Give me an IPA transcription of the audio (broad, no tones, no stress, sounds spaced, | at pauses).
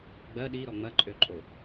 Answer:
ɡ͡b ɜ ɗ i ɾ ɔ ŋ͡m ɐ ǃʼ ø ǃʼ o